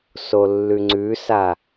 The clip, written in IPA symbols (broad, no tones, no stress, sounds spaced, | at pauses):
s o lː ʉ ŋ͡ǀ ʉ s a